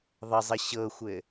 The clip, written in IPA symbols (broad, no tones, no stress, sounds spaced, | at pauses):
ðˤ ə zˤ ɘ ɕ ɤ xʷ ɘ